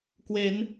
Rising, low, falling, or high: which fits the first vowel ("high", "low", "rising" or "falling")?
rising